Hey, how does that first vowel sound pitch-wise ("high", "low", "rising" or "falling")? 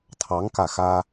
rising